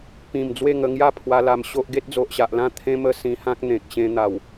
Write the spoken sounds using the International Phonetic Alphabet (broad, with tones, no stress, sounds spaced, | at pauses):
p ĩ˨˩ m d͡z w e˥˧ ŋ ə˧ ŋ j a˥˧ pʰ w a˧ l a˧ m ɕ o˦ ʔ ɡ e˦ t̚ d͡z o˨ ʔ ɕ a˨ ʔ l ã˥˧ t̪ʰ ẽ˧ m ə˧ s ĩ˧ h ã˦ k̚ n̪ ẽ˨ k̚ ɕ ẽ˧ n̪ a˨˩ w